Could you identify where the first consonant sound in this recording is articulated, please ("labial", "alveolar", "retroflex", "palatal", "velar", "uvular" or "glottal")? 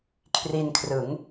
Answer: velar